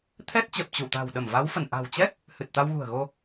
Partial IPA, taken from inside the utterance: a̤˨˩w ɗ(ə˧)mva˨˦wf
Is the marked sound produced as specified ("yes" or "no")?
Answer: no